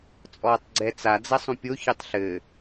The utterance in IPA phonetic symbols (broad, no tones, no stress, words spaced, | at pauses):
t͡sʼɔːtˤɡ͡ǀɛt͡sa d͡zɐsˤũpʲo çɨtˤɬɘ